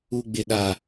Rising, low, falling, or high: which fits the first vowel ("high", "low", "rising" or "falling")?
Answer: high